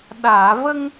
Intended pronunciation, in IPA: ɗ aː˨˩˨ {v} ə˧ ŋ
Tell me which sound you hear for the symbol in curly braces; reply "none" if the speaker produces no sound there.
v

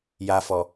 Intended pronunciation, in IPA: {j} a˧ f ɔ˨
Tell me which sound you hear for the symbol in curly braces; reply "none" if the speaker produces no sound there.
j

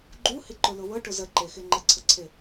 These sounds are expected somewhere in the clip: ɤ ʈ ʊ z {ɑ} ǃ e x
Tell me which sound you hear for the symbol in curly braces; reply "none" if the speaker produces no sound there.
ə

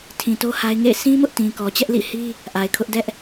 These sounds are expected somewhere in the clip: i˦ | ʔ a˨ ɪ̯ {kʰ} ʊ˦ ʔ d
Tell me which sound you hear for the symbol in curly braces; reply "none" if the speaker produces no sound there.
kʰ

